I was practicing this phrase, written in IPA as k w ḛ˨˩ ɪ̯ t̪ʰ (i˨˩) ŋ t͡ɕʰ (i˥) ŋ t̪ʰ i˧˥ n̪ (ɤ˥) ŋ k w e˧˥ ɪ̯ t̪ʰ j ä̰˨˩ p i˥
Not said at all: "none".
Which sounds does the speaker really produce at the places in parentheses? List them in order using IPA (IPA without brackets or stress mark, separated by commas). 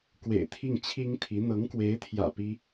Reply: i˥˩, i˥, ɤ˧˥